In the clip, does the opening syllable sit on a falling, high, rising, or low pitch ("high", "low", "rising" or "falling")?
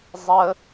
high